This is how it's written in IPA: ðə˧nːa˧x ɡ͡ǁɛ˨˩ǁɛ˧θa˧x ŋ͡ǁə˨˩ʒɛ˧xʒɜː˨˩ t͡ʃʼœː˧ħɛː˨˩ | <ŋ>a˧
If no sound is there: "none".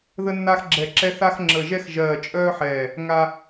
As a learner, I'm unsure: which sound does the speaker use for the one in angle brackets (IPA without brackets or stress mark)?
ŋ